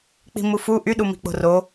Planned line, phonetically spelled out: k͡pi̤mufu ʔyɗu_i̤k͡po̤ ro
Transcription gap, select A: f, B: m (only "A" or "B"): B